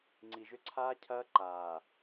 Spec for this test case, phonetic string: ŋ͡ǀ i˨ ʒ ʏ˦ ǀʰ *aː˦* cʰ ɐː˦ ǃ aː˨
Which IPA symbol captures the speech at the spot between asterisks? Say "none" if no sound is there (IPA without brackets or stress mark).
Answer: aː˦